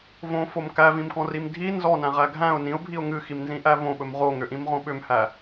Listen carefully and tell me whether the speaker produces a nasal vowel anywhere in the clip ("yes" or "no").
yes